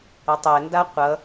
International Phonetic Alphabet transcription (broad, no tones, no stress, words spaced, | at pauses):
ʌtˤɛnda qʷʌ